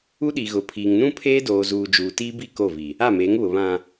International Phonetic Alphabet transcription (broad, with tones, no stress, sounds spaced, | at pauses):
u˦ ɗ i˨ ɣ ʊ˨ pʰ iː˨ ŋ n ũ˦ pʰ eː˦ d oː˨ z uː˨ d͡ʒ uː˨ t iː˦ b i˦˨ k o˦˨ v i˨ | a˦˨ m eː˨˦ ŋ β ʊ˨ β ã˨